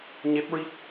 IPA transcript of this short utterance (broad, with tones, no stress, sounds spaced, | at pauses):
ɲ e˦˥ p̚ ɹ i˦˥ k̚